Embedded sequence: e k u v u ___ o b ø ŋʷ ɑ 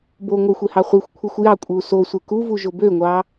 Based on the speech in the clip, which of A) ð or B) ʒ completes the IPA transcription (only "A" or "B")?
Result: B